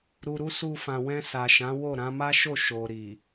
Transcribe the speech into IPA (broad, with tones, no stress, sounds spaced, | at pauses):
ɾ u˨ ɾ u˧ s u˧ f ã˨ w ɛ̃˧ s a˨ ʃ ã˨˦ w o˦˨ ɾ ã˧ m a˦ ʃ o˦˨ ʃ o˨ ɾ i˨